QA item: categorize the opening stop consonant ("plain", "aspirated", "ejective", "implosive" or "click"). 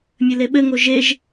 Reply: implosive